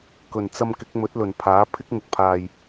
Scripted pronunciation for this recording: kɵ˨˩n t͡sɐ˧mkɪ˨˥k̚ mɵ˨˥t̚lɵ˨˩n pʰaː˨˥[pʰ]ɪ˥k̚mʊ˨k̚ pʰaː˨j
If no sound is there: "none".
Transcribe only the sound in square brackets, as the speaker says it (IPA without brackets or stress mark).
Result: pʰ